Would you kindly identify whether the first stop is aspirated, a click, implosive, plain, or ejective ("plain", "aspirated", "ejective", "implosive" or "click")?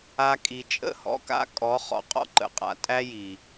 ejective